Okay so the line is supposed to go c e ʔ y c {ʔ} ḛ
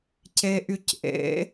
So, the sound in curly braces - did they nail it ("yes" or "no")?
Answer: yes